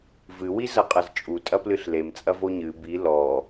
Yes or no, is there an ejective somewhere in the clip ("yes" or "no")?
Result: yes